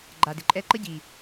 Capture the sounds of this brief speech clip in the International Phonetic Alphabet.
ɡ͡ǃa˨dɪ˨˦ǃʼɛ˦ ǃə˦ɟi˨

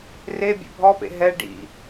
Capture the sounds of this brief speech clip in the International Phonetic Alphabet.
re bʲḛbʱɔpḛ ɦɛ ɖḭ

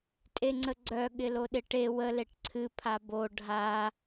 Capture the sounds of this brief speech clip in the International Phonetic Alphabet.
tʼeŋ͡ǀəɡ͡ǀœ ɠɪloɗɪʈe wə leʈǀʰɨ pʰabo ɖʱa

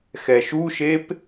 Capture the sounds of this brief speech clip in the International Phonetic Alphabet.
xɛʃuʃep

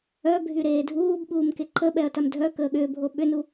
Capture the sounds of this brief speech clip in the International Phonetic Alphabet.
œbʱy ɾeːdʱuːb ɓuːmkeǃəɓɛɐ̯ tamdʱœ kəːɠʏːbʱo ɓʏnu

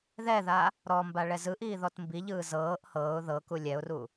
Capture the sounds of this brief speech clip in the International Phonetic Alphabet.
ðɛða | ɾɔmba ɭɛzɯʔiː ðɔtmbiʎɯː zɤːʔ hɤːʊ̯ ðɤku lʲɛʊ̯ru

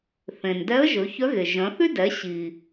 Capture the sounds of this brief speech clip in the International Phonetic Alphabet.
θẽ˩n dɛ˧˥ə̯ ʒɵ˩˧çœ˧˥ɣe˩ ʒœ̃˩˧θy˥ dɛ˩˧ ɕi˩

